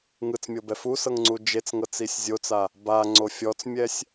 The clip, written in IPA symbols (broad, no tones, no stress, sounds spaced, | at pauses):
ŋ ɯ t͡s mʲ ɤ b ɛ f u s ɤ ŋ ŋ͡ǀ u d͡ʒ e t͡s ŋ ɤ t͡s i sʲ zʲ o t͡s a | b a ŋ͡ǀ o fʲ ɔ t͡s mʲ ɛ sʲ